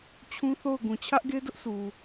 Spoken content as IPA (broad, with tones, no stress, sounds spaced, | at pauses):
t͡ɕʰ ũ˦ θ o˦˨ ʊ̯ ɡ ũ˨ t͡ɕʰ ä˦ ʔ ɡ e˦ d ʊ˦ ʔ s u˨